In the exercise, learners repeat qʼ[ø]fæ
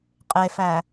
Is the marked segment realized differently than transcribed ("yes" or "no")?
yes